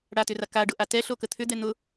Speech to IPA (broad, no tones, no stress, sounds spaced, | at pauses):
ɽ a t ʏ r a k a ɖ ʊ ʔ a t ɛ ɬ o k ə t̪ʰ ʏ d̪ ɛ n̪ ʊ